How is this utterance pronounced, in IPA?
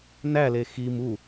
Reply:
n æ l e x i m u

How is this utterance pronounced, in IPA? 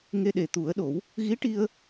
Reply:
ŋ e˧ ɗ e˨˩ t̪ u˨˩˦ ə̯ ɗ o˨˩˦ w | ɣ i˧˥ ʈ i˧ ə̯

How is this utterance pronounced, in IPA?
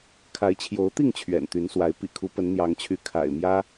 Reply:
kʰ a˨˦ ɪ̯ t͡ɕʰ j o˨˦ ʊ̯ t̪ i˥˨ ŋ t͡ɕʰ ɥ ɛ̰˨˩ n t̪ y˨˦ n s w a˨˦ ɪ̯ p ḭ˨˩ kʰ u˨˦ p ə˨˦ n n̪ j ɑ˨˦ ŋ t͡ɕʰ y˨˦ kʰ a̰˨˩ ɪ̯ m j ä˦

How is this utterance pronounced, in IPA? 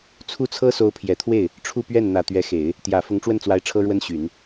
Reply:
t͡sʰ u˥˩ t͡sʰ ɤ˥ s o˧˥ ʊ̯ pʰ j ɛ˨˩ t̪ʰ w e˥˩ ɪ̯ | ʈ͡ʂʰ u˥˧ p ɥ ɛ˥˩ n n̪ ä˨˩ t̪ ɥ ɛ˧˥ x e˨˩˦ ɪ̯ | t̪ j ä˨˩ f ʊ˧˥ ŋ ʈ͡ʂ w ə˥˩ n t͡s w a˧˥ ɪ̯ ʈ͡ʂʰ ɤ˥ ɻ w ə˥ n ɕ y˨˩˦ n

